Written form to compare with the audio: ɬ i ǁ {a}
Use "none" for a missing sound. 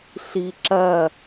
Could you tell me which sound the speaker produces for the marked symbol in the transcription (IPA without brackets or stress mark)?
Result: ɐ